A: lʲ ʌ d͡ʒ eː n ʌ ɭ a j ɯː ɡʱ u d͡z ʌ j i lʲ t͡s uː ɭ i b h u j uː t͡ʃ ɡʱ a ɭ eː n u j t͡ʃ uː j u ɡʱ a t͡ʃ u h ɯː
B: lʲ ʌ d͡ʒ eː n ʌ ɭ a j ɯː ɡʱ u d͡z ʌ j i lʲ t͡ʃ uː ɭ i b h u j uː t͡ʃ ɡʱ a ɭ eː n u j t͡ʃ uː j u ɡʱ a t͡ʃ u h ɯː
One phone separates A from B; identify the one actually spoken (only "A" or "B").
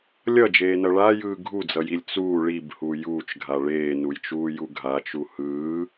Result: A